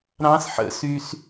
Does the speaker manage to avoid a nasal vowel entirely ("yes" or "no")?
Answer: no